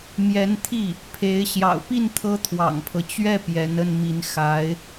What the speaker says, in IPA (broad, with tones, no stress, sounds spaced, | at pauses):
m j ɛ˧˥ n t̪ʰ i˥˩ | pʰ e˧˥ ɪ̯ ɕ j ɑ̰˨˩ ʊ̯ p i˥˩ n t̪ʰ ɤ˥ t̪ʰ w ɑ̰˨˩ ŋ pʰ ɤ˦ t͡ɕ ɥ ɛ˥˩ p j ɛ˧˥ n ə˥˩ n m i˧˥ n x a˧˥ ɪ̯